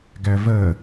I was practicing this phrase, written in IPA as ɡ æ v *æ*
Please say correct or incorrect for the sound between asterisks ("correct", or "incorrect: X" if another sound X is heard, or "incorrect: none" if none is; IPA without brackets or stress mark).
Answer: incorrect: ɜ